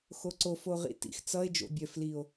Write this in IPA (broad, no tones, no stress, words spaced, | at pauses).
xoǀof oʁḭtḭx t͡sʌe̯ d͡ʒo̰bʲœf lio̯